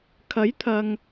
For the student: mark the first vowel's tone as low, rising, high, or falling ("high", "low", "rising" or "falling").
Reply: rising